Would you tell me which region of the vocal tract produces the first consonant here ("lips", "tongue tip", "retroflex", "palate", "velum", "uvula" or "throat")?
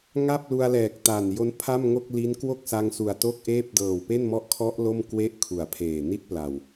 velum